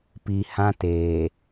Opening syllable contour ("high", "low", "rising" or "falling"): low